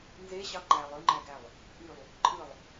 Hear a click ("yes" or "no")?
yes